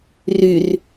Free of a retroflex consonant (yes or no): yes